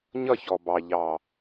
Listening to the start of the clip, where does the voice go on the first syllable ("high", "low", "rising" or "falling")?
falling